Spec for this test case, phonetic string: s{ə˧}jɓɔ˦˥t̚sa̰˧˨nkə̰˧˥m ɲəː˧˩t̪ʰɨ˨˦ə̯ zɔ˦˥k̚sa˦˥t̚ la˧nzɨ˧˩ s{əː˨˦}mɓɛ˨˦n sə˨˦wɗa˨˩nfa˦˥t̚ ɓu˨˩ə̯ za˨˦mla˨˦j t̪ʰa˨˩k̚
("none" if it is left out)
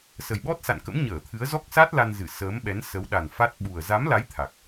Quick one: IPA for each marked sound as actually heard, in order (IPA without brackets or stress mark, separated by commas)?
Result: ə˨˩, əː˨˦